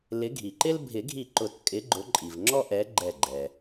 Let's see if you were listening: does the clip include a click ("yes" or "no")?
yes